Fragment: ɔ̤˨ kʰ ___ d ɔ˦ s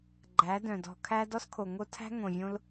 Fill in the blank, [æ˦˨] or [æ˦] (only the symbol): æ˦